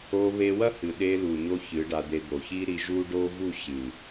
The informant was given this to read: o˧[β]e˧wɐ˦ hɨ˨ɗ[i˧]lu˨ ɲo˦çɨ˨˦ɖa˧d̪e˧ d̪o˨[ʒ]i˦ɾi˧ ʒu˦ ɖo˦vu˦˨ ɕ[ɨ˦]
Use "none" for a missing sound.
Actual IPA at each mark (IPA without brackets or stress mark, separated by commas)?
β, e˧, ç, ɨ˨